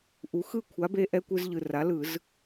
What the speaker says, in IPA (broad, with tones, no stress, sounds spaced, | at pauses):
ʔ u˩˥ x ɯ˥˨ kʷʰ a˩˥ b e˧ ʔ ɛ˧ kʷ ɯ˧ z ʎ ɯ˨˩ r a˩˥ l ɯ˧˩˧ z